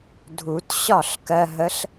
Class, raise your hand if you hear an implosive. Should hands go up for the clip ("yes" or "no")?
no